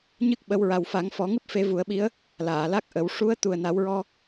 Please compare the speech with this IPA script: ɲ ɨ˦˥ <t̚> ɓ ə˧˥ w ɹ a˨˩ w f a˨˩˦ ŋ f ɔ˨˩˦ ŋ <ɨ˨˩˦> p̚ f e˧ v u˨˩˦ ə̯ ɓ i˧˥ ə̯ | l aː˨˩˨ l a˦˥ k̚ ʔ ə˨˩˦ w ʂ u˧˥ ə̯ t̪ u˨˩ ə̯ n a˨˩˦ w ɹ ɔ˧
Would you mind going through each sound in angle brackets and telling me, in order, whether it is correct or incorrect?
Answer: incorrect: k̚, incorrect: ɨ˦˥

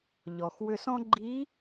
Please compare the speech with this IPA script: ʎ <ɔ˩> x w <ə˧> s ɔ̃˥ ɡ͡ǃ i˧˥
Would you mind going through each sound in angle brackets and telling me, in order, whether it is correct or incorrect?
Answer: correct, incorrect: ʏ˧

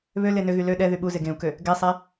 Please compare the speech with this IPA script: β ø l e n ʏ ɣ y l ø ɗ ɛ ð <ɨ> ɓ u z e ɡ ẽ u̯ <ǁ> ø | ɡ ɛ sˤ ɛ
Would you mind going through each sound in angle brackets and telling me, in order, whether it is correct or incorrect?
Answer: incorrect: y, incorrect: k

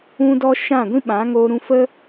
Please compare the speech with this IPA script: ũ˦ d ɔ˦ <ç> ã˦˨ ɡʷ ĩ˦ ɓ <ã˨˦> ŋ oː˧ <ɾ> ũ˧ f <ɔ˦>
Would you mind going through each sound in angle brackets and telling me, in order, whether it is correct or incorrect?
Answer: incorrect: ʃ, correct, correct, incorrect: ə˦

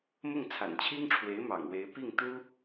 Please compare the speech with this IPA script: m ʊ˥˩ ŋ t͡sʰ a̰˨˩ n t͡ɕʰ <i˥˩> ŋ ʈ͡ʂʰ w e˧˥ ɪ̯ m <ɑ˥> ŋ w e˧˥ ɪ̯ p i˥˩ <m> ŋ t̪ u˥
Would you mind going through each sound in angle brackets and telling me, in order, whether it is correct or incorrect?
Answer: incorrect: i˥, incorrect: ɑ̰˨˩, incorrect: none

